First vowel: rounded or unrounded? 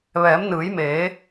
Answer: unrounded